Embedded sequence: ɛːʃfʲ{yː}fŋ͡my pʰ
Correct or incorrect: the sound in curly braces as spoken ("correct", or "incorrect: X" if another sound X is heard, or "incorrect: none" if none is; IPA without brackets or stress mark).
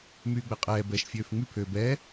incorrect: øː